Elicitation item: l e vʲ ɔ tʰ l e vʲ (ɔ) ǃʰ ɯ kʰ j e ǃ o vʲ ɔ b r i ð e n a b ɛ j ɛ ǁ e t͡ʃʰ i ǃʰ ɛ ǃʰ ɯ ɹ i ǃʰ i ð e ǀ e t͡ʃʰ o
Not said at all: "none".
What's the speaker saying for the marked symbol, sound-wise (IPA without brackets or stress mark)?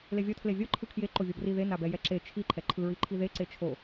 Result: ɔ